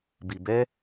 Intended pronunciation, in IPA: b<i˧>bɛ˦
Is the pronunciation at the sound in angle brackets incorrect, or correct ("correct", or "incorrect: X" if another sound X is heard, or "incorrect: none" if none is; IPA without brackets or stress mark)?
correct